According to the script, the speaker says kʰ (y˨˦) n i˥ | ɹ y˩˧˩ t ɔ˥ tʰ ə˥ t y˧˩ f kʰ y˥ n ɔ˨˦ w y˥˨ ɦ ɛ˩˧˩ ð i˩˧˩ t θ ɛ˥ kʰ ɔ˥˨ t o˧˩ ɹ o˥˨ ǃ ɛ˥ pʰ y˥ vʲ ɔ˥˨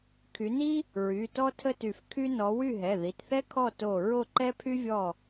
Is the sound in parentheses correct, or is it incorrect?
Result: correct